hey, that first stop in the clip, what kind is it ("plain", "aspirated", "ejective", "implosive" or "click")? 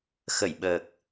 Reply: implosive